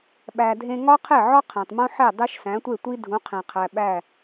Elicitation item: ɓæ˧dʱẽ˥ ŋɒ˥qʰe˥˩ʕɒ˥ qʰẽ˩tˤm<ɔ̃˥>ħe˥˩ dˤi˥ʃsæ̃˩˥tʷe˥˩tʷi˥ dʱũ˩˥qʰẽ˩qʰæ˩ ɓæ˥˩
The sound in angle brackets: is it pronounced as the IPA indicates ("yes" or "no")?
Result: no